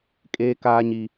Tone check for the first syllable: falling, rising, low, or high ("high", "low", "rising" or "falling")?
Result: high